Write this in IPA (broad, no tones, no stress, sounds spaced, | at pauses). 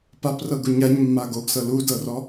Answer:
p a p r ɤ ɡ u ɲ a ɲ mː a ɡ o ɡ s ɤ l u d ɤ r ɔ